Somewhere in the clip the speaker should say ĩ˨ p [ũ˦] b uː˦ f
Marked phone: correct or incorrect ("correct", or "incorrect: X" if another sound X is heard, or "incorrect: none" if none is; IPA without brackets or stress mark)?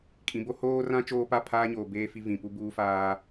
incorrect: u˦